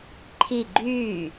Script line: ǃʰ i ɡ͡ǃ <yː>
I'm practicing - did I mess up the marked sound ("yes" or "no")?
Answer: no